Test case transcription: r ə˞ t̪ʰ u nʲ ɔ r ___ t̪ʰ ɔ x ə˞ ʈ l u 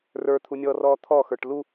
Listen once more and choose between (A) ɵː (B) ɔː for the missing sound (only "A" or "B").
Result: B